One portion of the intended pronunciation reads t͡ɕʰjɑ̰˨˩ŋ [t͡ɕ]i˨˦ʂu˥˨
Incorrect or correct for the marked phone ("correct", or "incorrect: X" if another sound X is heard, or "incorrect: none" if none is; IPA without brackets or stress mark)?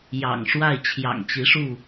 correct